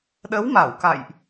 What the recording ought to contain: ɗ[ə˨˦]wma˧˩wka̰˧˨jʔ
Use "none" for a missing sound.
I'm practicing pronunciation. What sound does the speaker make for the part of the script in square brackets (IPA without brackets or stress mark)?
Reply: ə˨˦